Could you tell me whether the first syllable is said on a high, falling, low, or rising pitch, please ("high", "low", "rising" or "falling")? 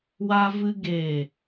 high